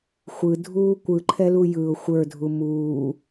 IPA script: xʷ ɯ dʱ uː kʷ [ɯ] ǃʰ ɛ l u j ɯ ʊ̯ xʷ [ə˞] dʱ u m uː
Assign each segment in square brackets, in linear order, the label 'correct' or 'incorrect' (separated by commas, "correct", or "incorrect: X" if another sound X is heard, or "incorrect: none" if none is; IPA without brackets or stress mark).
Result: correct, correct